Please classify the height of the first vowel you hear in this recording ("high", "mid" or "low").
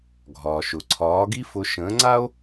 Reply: low